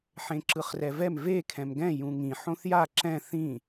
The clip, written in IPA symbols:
ħẽǁɯχrɛvɛm ve kʰɛ̃mɡɛ̃ jũŋĩ ħõθja ǁɛ̃ θĩ

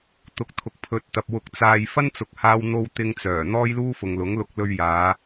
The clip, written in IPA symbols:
t̪ʊ˧k̚t̪ʰʊ˨k̚ pʰɵ˨t̚t̪ɐ˨p̚ wʊ˧k̚t͡saː˧j fɐ˥nt͡sʊ˨k̚haː˧wn̪o˧w t̪ɪ˧ŋt͡sœː˨˩ n̪ɔː˥jluː˥fʊ˨ŋ lʊ˨˥ŋlʊ˧k̚ lɵ˧ɥjaː˨˧

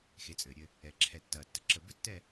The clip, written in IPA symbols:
xe˨˦t͡sʼɘː˨ɾʲɘ˦ | ɛ˨ǁʰɛ˨tːɐː˨ tːə˦ǁə˦˨ bɘ˦tːɛ˦˨

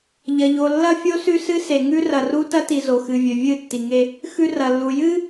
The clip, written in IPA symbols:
ʎɐ˨ʎo˨ lːɐ˦ fʲo˦sʉ˦sɨ˦ se˨ŋʉ˦ rɐ˨ru˦ tɐ˦ti˨ zo˨xɨ˨vʲɵ˨ vʲɨ˦˨tːi˨ŋe˦ | xʉ˦rɐ˨lːu˨ jɨ˦

